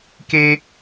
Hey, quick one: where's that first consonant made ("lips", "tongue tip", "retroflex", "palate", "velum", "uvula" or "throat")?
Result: velum